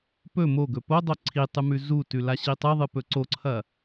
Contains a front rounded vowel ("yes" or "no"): no